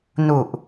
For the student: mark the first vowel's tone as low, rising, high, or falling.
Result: low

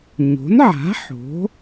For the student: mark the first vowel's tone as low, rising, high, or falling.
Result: rising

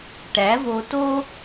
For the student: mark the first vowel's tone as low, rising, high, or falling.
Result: rising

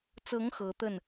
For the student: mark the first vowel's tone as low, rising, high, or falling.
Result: rising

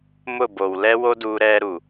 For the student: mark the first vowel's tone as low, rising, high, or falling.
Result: falling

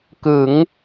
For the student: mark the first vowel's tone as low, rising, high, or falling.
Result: rising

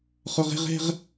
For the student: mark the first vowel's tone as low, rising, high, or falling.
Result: high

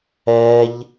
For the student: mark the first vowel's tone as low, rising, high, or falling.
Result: high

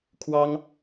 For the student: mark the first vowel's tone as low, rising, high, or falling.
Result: high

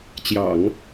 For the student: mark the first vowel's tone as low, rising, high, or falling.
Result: low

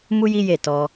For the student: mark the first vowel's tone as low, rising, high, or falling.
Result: high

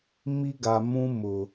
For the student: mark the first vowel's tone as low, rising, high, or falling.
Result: high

